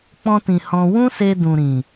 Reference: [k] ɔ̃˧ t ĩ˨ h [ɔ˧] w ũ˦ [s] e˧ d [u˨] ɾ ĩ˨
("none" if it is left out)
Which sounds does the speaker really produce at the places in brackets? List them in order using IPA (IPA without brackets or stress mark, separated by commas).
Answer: k͡p, ɔ̃˧, s, ũ˨